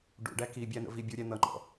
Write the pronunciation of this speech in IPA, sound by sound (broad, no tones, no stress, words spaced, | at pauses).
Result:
ɖṵɖæ ki bʲæn̪ə̰ vi bʲuɾʲæ n̪ʌŋ͡ǃɔ̰